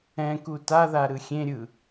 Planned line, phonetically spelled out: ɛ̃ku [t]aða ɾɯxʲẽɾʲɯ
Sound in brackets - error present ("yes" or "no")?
no